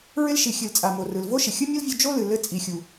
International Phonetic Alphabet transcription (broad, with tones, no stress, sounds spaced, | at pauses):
ɹ ɪ˦ l ʃ i˨ xʲ ɨ˨ l t͡sʼ a˨ m o˨ r ɯ˨ l v o˦ ʃ ɪ˨ xʲ ɯ˦ mʲ o˦ l vʲ u˧ d͡ʒ o˦ l ɨ˨ l ɘ˧ t͡sʼ i˨ xʲ u˨